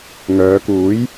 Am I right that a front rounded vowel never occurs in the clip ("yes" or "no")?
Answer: no